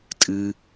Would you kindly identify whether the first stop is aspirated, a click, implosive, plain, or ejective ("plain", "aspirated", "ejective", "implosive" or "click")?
ejective